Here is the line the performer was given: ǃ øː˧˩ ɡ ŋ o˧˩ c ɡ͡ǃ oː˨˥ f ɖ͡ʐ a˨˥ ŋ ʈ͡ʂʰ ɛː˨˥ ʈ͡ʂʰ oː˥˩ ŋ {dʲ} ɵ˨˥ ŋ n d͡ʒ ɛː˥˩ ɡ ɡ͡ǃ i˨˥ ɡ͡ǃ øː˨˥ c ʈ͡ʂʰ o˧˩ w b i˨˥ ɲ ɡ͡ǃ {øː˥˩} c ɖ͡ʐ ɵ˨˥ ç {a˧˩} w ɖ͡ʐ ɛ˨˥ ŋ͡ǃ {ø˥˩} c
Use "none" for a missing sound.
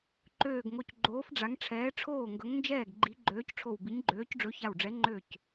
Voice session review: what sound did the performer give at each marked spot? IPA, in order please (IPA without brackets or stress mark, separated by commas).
ɡ, øː˨˥, a˧˩, ø˥˩